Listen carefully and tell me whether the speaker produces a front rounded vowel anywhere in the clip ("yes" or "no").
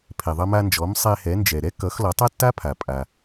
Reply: no